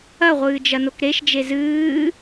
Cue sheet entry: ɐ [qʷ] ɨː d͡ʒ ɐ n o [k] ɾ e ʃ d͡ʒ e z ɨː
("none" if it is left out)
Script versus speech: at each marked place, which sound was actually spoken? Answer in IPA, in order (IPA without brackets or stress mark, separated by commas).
ʁʷ, k